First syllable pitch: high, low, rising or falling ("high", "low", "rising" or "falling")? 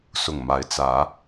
low